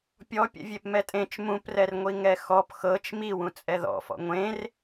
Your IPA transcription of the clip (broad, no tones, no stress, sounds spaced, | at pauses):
pʲ ɔ pʲ ɛ̰ vʲ e p m ɛ tʼ ẽ t͡ʃ m ũ p r ɛ r ŋʷ i ŋ ɛ x ɔ p x ɤ t͡ʃ m i w ũ t͡sʼ ɛ ð ɔ̰ f ɔ̰ ŋʷ ẽ r